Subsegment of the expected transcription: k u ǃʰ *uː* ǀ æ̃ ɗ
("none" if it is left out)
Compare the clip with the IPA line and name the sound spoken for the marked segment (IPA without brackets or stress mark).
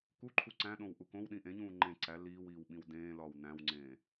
u